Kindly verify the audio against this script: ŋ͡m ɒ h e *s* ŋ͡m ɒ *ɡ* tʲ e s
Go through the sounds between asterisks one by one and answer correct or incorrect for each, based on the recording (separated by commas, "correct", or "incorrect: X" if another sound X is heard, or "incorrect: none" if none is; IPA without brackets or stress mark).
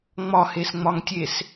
correct, incorrect: ŋ